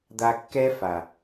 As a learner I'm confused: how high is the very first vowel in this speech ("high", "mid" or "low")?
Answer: low